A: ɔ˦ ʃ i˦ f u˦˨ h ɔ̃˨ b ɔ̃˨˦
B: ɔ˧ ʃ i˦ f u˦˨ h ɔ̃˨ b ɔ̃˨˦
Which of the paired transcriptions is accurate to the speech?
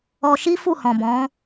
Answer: B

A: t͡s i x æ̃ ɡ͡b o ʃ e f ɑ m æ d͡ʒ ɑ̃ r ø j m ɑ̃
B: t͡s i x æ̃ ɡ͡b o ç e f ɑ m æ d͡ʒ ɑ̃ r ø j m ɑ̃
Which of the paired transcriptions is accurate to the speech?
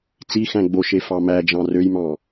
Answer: A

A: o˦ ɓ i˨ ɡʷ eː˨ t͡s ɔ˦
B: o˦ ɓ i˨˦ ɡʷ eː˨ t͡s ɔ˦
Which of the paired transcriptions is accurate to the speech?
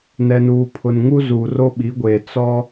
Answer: B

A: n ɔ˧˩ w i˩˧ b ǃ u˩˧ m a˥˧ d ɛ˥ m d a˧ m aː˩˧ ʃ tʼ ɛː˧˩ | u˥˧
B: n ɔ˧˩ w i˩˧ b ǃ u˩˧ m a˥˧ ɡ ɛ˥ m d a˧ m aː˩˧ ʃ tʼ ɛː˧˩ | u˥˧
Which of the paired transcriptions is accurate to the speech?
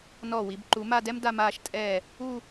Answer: A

